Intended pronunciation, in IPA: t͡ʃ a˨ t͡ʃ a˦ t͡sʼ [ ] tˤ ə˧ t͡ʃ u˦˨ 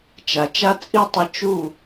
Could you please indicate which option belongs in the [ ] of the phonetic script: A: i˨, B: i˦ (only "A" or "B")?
B